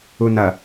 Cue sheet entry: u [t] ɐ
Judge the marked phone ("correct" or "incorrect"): incorrect